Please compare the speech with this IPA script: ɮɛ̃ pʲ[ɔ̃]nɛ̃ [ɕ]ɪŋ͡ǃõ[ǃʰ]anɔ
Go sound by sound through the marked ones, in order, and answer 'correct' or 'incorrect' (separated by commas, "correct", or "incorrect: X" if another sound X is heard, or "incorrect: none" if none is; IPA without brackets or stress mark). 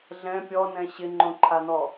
incorrect: ɔ, correct, correct